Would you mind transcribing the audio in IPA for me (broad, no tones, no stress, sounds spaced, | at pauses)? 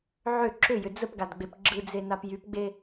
ʕ ʏ ǁ ʏ j ʏ d͡z ə p ɡ a d ɡ͡b e p ɡ͡ǁ ɯ d͡z e n a p j y p ɡ͡b e